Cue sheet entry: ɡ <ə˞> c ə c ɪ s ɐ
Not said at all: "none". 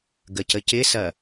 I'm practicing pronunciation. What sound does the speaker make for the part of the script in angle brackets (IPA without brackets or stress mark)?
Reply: ə